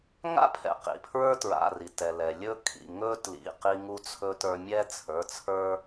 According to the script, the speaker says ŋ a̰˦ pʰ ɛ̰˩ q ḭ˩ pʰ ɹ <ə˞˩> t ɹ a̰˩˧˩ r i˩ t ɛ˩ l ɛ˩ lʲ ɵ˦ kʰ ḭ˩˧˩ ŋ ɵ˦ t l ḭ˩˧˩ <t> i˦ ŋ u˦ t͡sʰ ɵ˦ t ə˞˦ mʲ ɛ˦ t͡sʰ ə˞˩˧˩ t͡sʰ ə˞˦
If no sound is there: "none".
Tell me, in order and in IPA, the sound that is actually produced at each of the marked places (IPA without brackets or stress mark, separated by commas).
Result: ə˞˦, q